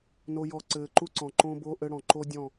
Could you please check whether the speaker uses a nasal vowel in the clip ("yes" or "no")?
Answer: yes